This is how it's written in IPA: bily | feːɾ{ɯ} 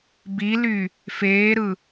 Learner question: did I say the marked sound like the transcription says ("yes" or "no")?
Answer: yes